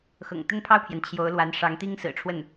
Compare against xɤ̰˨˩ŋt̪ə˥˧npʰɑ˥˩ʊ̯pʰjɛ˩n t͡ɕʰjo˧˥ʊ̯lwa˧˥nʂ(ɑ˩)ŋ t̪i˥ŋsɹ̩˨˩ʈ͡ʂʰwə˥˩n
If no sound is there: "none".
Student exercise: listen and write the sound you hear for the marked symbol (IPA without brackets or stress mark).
ɑ˧˥